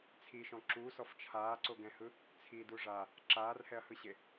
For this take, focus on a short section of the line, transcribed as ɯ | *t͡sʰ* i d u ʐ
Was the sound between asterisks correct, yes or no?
yes